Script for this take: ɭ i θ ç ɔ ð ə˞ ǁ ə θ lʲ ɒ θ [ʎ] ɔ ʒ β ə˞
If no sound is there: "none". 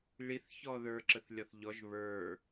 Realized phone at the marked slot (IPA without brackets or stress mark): ʎ